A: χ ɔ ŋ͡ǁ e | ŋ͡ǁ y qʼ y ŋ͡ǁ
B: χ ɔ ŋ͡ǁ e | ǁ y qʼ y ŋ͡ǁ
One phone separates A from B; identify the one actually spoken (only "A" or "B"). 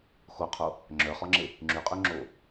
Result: A